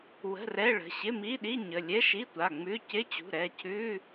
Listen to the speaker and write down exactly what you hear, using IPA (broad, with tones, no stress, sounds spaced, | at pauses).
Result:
w ə̤˧˥˧ r ɛ˧˥˧ ɭ ə̤˩˧˩ ɕ ɪ˧˥˧ m i˧˥˧ ɗ i˧˥˧ ɲ ə˩˧˩ lʲ ɛ˧˥˧ ʃ i˧˥˧ tʷ a˩˧˩ ŋ͡m ʉ˧˥˧ c ɪ˧˥˧ t͡ɕ ṳ˩˧˩ ɾ ɛ˩˧˩ cʰ ʉ˧˥˧